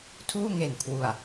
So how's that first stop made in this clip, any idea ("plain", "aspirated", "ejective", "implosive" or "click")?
aspirated